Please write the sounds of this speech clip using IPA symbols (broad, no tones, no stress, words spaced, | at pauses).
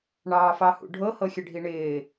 ɳɑːfɑhṵɖʱɤ hɤxʲəɖʱiɳɪː